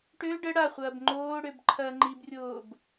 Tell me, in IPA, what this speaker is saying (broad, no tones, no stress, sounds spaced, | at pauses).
ʈ ø ɖ ə ɽ a χʷ ɐː b ŋ͡ǃ oː ɽ ø b ǃʰ ɐː ŋ͡ǃ i b rʲ oː b